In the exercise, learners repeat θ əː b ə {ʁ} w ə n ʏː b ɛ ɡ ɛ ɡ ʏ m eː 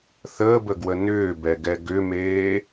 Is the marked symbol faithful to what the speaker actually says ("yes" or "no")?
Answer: no